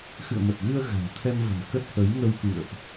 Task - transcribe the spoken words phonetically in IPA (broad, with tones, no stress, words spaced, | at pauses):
xɨ̰˧˨ə̯mə˨˩t̚ɣɨ˧ə̯ ɣa̤˨˩ŋt̪ʰɛ˧mvə̤˨˩n kə˦˥t̚hə˨˦j ŋə˧wkɨ̰˧˨ə̯ʔ